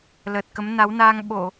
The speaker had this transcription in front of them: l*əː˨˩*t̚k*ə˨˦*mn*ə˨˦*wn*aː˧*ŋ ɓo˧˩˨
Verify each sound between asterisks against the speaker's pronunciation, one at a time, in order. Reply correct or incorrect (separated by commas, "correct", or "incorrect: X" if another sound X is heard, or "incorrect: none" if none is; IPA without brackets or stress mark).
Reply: correct, correct, incorrect: a˨˦, correct